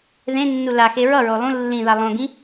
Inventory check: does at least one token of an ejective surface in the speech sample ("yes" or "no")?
no